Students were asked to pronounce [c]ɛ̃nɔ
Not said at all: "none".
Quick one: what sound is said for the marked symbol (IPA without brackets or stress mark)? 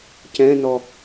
c